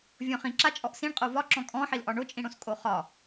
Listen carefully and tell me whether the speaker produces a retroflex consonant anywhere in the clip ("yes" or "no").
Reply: yes